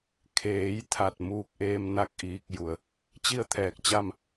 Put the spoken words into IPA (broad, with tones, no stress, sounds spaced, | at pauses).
kʰ eː˩˧ j t̪ʰ a˧˩ t̚ m uː˧ k̚ ʔ eː˧ m n a˥˨ k̚ ʔ iː˧ k̚ j u˧˩ ə̯ | t͡ɕ i˥˨ ə̯ t̪ʰ ɛː˧˩ k̚ t͡ɕ a˥˨ m